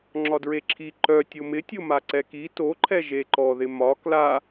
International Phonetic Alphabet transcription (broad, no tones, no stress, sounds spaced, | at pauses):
ŋ͡ǁ ɒ d ɹ e ǁʰ i ǃ œ tʲ o m ɪ tʲ o m a ǀ ɛ k i t o ǃʰ ɛ ʒ e ǃ ɔ ð ɪ m ɒ k l a